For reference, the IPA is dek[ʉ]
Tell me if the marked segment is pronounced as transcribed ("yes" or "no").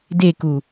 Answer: no